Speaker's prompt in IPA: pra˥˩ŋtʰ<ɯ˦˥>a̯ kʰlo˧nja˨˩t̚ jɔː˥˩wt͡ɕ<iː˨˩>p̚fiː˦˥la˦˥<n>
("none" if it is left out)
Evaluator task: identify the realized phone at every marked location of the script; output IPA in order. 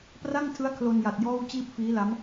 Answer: ɯ˦˥, iː˥˩, m

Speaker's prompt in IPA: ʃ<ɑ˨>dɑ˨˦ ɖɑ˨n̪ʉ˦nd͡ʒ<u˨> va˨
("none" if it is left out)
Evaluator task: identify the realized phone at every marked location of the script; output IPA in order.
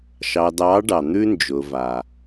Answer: ɑ˨, ʊ˨

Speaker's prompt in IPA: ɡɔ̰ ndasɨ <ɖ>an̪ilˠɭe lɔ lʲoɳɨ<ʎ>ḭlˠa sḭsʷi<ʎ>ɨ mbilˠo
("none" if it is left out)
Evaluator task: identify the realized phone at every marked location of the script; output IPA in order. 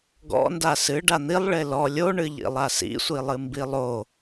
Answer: ɖ, ʎ, lˠ

